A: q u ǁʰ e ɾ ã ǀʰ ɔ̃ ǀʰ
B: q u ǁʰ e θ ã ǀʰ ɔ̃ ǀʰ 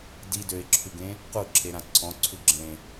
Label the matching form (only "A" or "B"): A